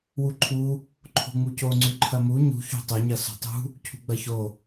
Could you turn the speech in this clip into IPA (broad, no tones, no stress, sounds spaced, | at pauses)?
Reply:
w u ǃʰ u | ǃʰ o̤ ŋ͡m u c o ŋ͡ǀ ʉ ǃʰ ɐ m u ɲ ṳ ç o̤ tˤ ɵ ɲ ɐ s ṳ tˤ ṳ | cʰ ṳ ɡ͡b ɐ ç o